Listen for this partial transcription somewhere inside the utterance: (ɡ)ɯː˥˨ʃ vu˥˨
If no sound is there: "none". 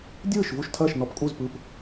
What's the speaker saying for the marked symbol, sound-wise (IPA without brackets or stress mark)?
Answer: dʲ